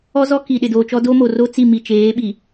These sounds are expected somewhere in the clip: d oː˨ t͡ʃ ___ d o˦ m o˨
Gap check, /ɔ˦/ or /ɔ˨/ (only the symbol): ɔ˦